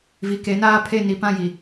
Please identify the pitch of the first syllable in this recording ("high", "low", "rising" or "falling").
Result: low